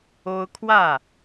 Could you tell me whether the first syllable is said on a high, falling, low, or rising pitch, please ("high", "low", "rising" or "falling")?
high